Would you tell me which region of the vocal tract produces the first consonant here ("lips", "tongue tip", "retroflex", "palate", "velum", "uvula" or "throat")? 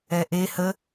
throat